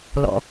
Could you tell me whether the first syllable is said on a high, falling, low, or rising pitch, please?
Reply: low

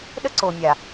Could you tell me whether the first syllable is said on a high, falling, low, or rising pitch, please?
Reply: high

